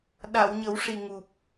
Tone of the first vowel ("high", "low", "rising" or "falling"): low